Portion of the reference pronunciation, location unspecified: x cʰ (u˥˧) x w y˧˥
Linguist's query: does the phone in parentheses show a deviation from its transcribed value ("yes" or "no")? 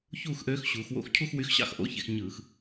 no